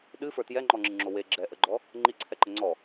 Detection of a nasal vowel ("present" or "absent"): absent